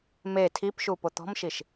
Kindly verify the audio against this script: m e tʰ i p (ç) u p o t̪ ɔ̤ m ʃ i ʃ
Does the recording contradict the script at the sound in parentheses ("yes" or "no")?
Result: yes